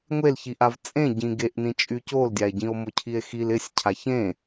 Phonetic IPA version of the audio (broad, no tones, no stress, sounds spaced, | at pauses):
ŋʷ e l ç i ʔ a v t͡sʼ ẽ ɟ ĩ ɡ e ʔ n ĩ t͡ʃʼ y c o l dʲ a e̯ ɟ ĩ o̯ m o cʰ i e̯ x i l ɪ sʲ cʰ a ç ẽ